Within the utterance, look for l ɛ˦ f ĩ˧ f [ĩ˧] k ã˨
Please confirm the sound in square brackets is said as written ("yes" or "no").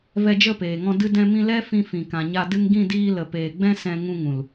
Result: no